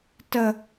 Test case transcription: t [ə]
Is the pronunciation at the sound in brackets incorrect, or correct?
correct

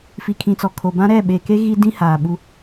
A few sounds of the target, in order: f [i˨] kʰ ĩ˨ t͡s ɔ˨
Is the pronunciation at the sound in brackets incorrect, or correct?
correct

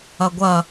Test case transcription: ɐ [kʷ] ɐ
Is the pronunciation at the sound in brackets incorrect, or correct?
incorrect: ɡʷ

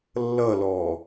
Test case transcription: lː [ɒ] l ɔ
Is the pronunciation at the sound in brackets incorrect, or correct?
incorrect: ʌ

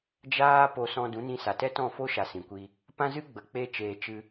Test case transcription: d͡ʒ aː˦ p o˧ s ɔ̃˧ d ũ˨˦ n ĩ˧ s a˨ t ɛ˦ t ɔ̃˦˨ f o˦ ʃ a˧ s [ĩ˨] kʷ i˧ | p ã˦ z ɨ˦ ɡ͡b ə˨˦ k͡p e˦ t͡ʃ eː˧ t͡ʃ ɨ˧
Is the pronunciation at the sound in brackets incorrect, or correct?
correct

